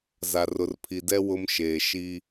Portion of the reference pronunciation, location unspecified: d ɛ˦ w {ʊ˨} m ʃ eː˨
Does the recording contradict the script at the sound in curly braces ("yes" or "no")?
yes